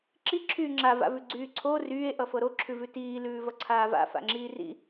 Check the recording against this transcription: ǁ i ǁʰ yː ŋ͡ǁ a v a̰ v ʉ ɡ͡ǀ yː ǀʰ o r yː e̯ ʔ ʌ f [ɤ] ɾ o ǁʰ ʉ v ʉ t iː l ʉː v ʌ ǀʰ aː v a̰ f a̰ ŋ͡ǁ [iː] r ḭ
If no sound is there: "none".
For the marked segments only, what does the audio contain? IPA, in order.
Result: ɤ, iː

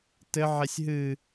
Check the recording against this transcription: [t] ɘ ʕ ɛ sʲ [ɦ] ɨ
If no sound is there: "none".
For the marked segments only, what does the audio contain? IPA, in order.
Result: t, ɦ

